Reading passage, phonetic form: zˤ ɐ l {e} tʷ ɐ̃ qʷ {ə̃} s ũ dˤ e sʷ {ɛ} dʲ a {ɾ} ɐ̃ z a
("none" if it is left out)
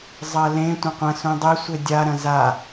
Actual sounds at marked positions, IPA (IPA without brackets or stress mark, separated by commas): ẽ, ɐ̃, e, ɾ